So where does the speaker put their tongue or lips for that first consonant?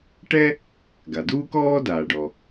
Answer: retroflex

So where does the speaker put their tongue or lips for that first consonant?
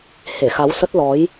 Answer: throat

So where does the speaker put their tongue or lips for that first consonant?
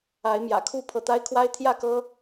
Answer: lips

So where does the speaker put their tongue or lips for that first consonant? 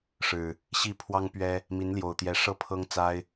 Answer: retroflex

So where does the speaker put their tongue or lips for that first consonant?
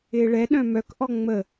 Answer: retroflex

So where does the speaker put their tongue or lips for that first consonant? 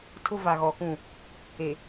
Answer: tongue tip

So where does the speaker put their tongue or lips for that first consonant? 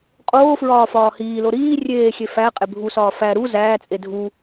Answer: uvula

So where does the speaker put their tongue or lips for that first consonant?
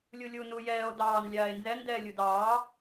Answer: tongue tip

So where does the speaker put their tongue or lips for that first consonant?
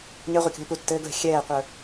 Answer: palate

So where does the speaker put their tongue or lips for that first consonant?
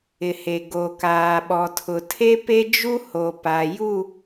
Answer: throat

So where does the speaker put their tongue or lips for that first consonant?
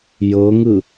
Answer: palate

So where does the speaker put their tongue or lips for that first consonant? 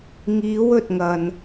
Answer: velum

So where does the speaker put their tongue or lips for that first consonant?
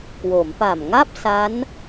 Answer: velum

